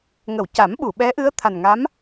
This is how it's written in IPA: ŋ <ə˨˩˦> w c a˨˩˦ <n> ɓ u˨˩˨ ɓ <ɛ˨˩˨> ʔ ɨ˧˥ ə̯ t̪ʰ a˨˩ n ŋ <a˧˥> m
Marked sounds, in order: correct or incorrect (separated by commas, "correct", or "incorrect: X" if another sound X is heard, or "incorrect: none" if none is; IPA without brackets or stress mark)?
incorrect: ə˨˩˨, incorrect: m, incorrect: ɛ˧˥, correct